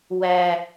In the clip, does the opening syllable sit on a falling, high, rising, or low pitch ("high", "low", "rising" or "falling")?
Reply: high